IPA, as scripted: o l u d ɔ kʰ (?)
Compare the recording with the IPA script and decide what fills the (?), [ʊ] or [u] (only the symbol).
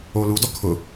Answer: ʊ